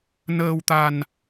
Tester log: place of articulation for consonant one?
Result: alveolar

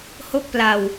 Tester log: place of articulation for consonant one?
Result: glottal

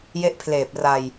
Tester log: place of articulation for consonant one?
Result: palatal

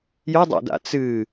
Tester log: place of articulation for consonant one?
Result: palatal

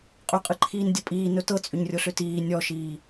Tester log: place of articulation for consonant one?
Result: uvular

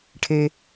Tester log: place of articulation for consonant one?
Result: retroflex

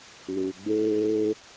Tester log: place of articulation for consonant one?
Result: alveolar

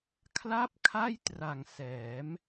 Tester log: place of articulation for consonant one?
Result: velar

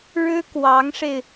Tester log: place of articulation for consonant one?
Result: retroflex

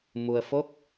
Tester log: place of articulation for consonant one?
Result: labial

